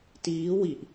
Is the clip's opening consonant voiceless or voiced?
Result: voiceless